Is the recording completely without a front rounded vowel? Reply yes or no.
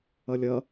yes